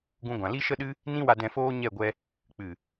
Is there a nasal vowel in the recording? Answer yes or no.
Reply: yes